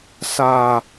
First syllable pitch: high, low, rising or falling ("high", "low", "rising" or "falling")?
low